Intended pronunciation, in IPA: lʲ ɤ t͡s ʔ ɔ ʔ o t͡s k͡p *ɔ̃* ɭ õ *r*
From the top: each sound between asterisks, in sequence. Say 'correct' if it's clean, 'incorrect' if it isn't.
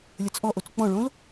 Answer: correct, incorrect: l

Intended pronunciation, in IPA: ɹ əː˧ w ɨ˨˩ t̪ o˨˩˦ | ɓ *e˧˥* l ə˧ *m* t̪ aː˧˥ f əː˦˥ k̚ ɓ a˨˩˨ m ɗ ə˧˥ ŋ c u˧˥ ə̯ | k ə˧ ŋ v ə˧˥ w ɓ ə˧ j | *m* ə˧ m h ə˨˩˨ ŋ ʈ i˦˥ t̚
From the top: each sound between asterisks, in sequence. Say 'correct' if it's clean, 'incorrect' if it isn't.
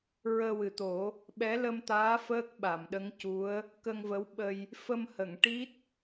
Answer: incorrect: ɛ˧˥, correct, incorrect: f

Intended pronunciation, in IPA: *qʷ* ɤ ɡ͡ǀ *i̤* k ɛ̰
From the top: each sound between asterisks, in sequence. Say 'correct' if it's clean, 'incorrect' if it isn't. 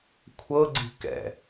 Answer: incorrect: kʷʰ, correct

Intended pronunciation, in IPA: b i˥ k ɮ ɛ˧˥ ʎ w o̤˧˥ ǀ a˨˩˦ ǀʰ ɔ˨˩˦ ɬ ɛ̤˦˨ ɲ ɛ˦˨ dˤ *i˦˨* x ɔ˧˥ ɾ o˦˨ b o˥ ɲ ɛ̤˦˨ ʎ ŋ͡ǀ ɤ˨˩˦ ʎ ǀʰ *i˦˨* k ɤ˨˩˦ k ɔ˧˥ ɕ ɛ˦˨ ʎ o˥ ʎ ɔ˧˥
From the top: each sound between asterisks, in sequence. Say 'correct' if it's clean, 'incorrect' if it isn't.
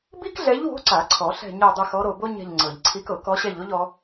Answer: correct, incorrect: i˧˥

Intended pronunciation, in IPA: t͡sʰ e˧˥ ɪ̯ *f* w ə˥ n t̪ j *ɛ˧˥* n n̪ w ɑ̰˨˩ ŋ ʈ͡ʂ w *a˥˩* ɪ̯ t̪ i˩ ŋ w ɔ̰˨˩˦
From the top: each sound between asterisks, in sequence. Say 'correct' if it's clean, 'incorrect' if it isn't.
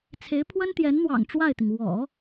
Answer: incorrect: pʰ, correct, correct

